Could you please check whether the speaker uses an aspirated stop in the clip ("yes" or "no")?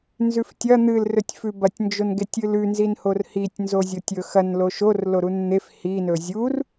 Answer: no